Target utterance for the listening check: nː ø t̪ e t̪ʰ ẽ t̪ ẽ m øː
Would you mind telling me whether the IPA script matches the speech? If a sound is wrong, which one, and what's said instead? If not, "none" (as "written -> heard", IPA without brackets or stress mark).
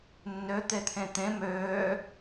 none